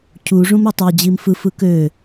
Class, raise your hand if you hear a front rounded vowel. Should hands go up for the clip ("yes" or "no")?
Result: yes